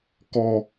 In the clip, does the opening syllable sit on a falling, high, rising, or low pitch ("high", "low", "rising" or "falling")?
low